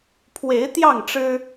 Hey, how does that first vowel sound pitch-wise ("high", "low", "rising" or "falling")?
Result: rising